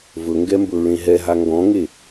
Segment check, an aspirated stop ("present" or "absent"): absent